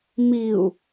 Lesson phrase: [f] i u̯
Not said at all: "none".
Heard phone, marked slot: m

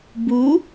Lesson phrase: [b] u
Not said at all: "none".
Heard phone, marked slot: b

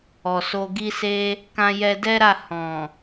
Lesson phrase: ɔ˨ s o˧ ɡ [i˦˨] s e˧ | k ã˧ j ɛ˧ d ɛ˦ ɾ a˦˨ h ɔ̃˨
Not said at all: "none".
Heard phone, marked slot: i˧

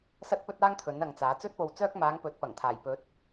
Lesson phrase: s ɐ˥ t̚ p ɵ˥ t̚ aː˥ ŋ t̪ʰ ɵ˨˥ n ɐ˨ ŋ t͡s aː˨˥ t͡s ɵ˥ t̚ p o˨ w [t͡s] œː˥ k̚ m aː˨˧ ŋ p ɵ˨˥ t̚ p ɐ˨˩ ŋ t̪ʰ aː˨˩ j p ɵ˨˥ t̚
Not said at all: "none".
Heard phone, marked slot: t͡s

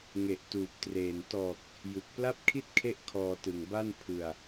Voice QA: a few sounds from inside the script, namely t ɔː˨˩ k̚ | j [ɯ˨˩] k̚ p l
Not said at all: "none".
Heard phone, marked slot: u˨˩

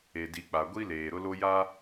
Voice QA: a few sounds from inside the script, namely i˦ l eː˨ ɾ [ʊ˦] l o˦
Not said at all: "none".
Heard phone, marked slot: ʊ˦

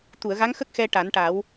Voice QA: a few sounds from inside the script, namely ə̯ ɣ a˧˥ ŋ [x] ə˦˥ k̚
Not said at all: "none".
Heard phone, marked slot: x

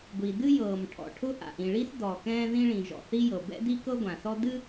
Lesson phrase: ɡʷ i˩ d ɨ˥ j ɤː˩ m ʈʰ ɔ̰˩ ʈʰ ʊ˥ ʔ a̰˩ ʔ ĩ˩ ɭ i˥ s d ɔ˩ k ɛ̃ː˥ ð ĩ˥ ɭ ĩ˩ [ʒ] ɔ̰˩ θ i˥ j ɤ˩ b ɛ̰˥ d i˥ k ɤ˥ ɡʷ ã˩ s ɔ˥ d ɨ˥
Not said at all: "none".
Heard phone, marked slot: ʒ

